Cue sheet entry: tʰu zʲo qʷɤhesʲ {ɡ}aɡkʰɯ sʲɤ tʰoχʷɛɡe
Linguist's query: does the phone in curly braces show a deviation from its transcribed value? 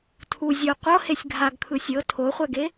yes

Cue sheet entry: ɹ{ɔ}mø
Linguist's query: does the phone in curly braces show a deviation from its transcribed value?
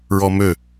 no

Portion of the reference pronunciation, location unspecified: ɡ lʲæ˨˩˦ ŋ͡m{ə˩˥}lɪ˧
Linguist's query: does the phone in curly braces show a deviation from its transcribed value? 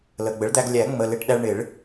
yes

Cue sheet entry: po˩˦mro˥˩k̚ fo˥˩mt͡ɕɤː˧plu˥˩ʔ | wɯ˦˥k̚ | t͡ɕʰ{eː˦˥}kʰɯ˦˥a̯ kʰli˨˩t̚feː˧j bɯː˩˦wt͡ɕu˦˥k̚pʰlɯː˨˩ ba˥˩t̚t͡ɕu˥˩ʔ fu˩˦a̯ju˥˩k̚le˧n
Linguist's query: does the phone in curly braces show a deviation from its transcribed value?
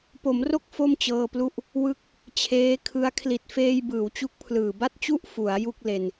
no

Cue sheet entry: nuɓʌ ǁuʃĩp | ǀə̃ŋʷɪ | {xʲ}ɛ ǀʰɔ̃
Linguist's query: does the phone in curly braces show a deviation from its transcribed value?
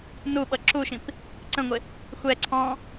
yes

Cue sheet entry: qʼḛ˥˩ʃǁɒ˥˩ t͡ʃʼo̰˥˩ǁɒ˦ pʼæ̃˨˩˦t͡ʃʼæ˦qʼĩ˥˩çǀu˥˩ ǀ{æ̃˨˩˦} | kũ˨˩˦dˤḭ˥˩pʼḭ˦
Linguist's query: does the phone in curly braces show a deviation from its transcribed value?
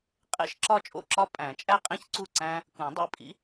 yes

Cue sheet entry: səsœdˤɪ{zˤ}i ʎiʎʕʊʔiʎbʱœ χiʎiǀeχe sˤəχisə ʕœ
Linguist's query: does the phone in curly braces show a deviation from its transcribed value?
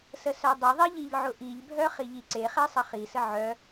yes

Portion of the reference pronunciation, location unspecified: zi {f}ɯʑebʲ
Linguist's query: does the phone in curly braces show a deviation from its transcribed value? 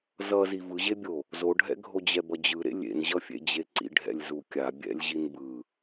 yes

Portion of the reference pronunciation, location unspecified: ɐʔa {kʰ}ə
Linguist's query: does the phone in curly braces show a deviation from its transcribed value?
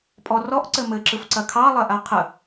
yes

